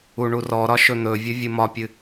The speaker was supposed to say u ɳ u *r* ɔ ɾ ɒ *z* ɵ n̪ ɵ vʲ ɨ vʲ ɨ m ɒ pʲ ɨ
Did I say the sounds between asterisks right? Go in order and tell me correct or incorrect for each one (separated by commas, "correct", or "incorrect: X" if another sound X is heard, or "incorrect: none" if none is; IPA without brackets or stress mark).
correct, incorrect: ʃ